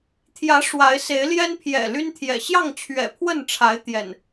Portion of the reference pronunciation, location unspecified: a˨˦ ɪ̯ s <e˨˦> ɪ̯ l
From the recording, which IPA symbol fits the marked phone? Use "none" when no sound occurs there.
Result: e˨˦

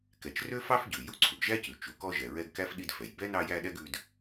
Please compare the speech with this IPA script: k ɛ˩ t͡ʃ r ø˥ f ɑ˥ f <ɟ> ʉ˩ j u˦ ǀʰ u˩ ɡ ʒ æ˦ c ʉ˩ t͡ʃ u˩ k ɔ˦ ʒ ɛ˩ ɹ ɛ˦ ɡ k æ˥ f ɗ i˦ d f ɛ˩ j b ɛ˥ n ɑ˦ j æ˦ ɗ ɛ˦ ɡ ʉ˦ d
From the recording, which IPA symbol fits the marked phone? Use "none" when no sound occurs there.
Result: ɟ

